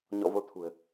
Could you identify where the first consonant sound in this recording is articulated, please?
palatal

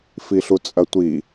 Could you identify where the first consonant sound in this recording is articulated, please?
labial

